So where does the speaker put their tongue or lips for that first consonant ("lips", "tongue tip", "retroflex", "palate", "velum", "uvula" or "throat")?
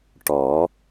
retroflex